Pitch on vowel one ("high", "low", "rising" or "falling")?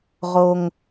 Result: high